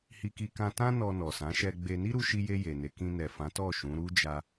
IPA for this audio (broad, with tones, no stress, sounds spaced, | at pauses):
h i˧ k i˧ k ã˧ t ã˦ n ɔ˧ n ɔ˨ s ã˨˦ ʃ ɛ˧ ɡ͡b e˧ n i˦ ɾ u˧ ʃ i˧ j e˧ j e˨ n e˨˦ k ĩ˧ n ɛ˨ f ã˨˦ t ɔ˦˨ ʃ ũ˨˦ ɾ u˦ d͡ʒ a˧